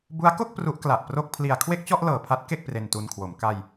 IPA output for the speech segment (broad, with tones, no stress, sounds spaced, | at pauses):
b u˦˥ a̯ k o˥˩ k̚ p r u˦˥ ʔ k l a˨˩ ʔ p r o˥˩ k̚ pʰ l i˧ a̯ kʰ w e˥˩ k̚ t͡ɕ ɔ˥˩ ʔ l ɤː˨˩ pʰ a˦˥ t̚ k e˥˩ k̚ p r e˧ n t u˧ n kʰ w o˩˦ m k a˧ j